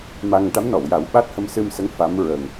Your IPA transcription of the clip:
m a˧ ŋ ʈ a˧˥ m n ɔ˨˩˨ w j a˨˩˦ w ɓ a˦˥ t̚ h ə˧ m s ɨ˧ m s ə˧˥ ŋ f a˧˥ m ɹ ə˨˩ ŋ

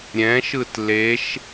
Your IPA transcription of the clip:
ɾʲ ɛ̃ ʃ ɯ t l e ʃ

